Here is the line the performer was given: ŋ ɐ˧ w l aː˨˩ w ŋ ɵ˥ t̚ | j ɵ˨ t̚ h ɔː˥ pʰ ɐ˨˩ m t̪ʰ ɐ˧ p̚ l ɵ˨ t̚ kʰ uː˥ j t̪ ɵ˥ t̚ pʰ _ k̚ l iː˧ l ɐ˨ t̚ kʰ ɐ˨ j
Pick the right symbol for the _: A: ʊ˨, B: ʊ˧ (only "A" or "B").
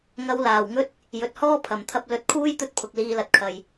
A